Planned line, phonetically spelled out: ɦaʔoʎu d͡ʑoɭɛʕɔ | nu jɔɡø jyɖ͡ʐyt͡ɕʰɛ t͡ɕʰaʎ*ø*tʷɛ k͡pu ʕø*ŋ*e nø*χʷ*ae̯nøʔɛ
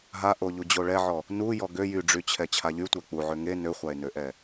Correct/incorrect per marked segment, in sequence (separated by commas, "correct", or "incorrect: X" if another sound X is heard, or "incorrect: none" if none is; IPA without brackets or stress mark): incorrect: y, correct, correct